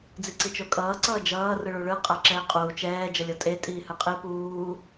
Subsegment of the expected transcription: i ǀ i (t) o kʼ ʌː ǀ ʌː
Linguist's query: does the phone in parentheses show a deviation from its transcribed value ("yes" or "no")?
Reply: yes